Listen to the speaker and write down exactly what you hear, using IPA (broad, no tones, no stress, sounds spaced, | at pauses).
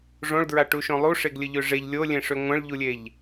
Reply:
ʐ õ ɭ d ɹ a ʈ u ʃ õ lˠ u ʂ e ɡ lʲ ə ʎ ø ʐ e ʎ lʲ o lʲ ẽ ʂ ø ŋʷ ə̃ ɭ ʎ u lʲ e ʎ